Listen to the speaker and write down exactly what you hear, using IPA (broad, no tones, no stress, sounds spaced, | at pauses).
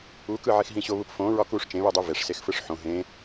u k ɯ ʕ i x ɦ ĩ ɕ o β u p f õ ɹ ɒ k u ʂ t͡ʃ ẽ β ɯ dˤ ɯ v e ʂ s e x f ɯ ʂ ħ õ ɦ ẽ